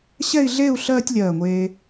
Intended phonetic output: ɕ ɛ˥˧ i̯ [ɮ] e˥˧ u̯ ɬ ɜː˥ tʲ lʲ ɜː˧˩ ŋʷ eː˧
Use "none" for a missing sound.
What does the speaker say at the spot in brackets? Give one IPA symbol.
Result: ɮ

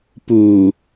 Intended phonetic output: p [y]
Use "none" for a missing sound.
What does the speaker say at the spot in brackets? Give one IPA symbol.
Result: u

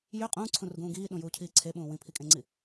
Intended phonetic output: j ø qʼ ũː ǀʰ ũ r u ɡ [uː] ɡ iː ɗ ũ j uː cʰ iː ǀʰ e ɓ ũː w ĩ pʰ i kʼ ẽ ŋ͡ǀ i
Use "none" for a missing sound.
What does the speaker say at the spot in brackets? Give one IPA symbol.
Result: ũː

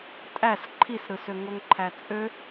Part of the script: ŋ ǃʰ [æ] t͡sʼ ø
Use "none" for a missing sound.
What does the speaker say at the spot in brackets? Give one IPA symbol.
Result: æ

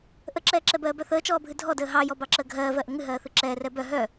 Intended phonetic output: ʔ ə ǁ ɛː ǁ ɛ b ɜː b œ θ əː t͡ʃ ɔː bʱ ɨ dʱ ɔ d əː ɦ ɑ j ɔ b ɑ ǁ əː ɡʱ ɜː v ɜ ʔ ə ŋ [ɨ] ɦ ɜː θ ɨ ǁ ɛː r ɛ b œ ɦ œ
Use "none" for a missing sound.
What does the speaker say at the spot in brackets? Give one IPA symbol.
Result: ɨ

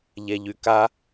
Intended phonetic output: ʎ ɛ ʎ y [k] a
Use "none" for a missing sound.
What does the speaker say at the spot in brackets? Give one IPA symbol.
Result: k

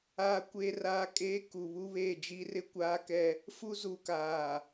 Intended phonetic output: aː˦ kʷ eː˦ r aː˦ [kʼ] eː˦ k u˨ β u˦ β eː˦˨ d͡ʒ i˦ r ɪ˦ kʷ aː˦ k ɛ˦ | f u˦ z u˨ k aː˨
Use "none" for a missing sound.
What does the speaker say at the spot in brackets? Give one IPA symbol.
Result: kʼ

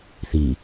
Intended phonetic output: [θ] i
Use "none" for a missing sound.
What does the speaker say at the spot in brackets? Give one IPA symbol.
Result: θ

